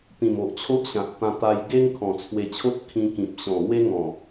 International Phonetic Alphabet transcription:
t̪ ĩ˨˩ m o˨ ʔ t͡ɕʰ o˦ ʔ ɕ ã˨ t̚ t̪ ã˧ t̪ a˧ j ɡ e˦ ŋ kʰ ɔ̃˨˩ t͡sʰ w e˧ t͡ɕʰ o˦ t̚ kʰ ĩ˧ k ĩ˨ p̚ ɕ ɔ̃˨˩ ŋ w e˦ ŋ ɔ̃˨˩

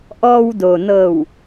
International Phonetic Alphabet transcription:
ʔ ɔː˧ w d o˩ n ɤː˧˩ w

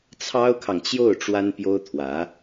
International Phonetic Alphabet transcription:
t͡sʰ ɑ˥ ʊ̯ kʰ ɑ˨ ŋ t͡ɕ j o˥˩ ʊ̯ ʈ͡ʂ w a˥ n p j o˥ ʊ̯ t̪ʰ w ä˧˥

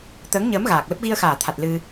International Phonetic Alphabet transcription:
t̪ əː˨˦ ŋ ɲ əː˨˦ m ɣ aː˨˩ k̚ l ə˦˥ p̚ ɣ i˧ ə̯ x aː˨˩ t̪ʰ a˨˩ t̚ l ɨ˧

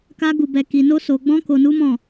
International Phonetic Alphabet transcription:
k a˦ ɡ u˧ b ɛ˧ k i˧ n o˦ s o˧ ɡ͡b ɔ̃˦ k o˧ n u˦ m ɔ̃˦˨

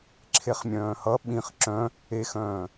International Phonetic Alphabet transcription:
ǁʰ e χ mʲ œ̃ː h ʌ ɓ ĩ χ ǁ œ̃ | e x œ̃ː

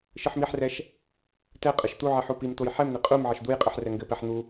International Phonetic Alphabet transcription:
ʃ ɨ ħ m i ħ r ɛ ʃ | t ɛ qʼ ɨ ʃ t̪ u ʕ i ħ u p i m t̪ o j ħ ɛ m n̪ i qʼ u m ʕ ɘ ʃ d̪ u j qʼ ɨ ħ r ɛ ŋ ɡ ɘ p ɛ ħ n̪ u

